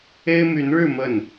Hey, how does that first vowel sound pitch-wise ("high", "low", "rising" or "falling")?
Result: high